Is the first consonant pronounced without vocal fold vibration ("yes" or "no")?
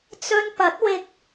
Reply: yes